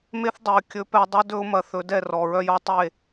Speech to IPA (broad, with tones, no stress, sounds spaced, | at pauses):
m e˦ θ dˤ e˨ ə̯ kʲ ɵ˨˦ p ɛ˧ dˤ ɵ˦ d ɵ˦ ʊ̯ m ɐ˧ θ ɵ˨˦ d ɛ˦˨ r ɔ˨ ɹ œ˧ j ɔ˦ tˤ e˦˨